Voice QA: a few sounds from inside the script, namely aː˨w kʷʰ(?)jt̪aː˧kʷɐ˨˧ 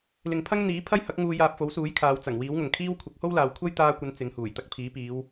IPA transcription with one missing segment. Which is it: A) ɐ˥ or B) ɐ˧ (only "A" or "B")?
A